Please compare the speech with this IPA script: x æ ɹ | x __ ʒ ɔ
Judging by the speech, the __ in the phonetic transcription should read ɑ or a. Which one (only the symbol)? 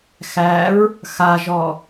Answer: a